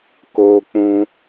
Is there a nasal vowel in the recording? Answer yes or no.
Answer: yes